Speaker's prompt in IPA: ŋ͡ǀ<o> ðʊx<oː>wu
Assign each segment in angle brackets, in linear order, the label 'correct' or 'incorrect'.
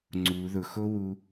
incorrect, incorrect

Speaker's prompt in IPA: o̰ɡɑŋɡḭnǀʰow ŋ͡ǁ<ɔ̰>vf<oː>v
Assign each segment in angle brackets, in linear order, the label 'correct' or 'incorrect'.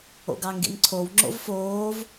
incorrect, correct

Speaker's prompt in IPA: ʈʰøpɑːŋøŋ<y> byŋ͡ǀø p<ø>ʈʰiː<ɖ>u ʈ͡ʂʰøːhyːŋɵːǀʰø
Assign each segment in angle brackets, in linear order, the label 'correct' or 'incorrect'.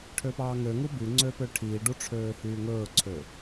incorrect, correct, correct

